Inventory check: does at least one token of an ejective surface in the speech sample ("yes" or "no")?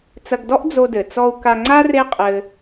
yes